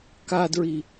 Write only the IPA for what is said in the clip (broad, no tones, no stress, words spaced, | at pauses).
kadɹi